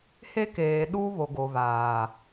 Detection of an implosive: present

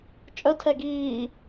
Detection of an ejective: present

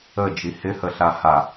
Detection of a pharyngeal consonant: absent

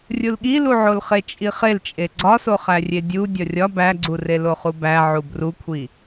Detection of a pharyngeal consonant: present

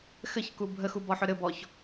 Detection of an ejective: absent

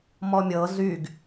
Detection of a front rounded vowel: present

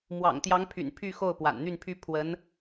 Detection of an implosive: absent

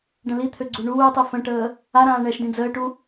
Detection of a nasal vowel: present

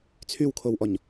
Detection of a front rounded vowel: present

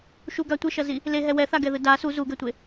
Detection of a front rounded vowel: absent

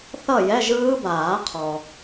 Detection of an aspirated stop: present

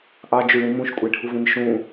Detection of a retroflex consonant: present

